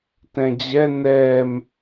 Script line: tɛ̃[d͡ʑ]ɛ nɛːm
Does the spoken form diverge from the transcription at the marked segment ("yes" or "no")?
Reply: no